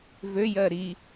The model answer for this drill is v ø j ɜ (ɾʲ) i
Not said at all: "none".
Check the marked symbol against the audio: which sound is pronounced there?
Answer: ɾ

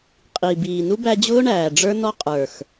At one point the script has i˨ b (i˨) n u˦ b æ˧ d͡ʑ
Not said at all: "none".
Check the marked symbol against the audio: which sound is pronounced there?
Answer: iː˨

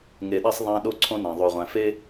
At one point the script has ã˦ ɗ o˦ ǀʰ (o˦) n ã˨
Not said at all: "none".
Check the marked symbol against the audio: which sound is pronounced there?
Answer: õ˦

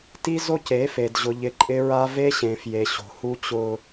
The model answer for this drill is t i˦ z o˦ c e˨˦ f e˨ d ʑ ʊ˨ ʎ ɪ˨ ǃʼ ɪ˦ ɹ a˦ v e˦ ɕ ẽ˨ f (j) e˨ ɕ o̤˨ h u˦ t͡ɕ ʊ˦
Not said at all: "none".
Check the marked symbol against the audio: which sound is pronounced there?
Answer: j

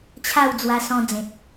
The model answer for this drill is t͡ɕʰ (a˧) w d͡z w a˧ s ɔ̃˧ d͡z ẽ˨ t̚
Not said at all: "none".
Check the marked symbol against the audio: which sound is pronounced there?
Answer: a˥˧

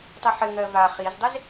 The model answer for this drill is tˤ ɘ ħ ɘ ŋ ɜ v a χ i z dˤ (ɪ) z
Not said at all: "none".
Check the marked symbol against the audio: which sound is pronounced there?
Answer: ɪ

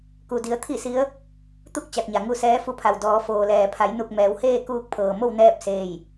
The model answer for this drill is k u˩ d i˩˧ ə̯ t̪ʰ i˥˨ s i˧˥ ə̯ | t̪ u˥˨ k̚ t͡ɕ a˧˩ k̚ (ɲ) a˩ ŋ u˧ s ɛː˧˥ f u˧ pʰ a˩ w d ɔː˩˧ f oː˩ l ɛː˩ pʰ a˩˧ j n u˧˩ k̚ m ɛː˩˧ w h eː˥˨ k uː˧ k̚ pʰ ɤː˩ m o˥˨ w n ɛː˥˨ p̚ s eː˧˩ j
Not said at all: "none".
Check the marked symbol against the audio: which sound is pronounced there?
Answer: ɲ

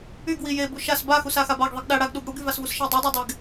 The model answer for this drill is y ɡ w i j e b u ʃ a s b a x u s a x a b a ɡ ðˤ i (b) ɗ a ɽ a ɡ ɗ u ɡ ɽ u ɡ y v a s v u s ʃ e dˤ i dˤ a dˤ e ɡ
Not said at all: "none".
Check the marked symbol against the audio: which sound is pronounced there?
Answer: ɡ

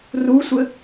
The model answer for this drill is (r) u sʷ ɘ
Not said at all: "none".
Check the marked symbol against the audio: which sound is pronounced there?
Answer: r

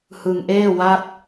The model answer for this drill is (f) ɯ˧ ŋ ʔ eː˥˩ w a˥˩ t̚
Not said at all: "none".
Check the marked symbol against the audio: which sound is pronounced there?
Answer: h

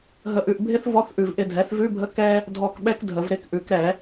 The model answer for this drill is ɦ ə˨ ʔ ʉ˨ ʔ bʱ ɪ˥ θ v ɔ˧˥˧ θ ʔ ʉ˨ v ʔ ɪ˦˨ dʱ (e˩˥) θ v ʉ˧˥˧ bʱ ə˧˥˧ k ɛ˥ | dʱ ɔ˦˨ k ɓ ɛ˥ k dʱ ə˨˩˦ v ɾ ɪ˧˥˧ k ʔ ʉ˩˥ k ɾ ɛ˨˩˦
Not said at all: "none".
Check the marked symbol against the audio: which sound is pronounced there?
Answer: ɛ˩˥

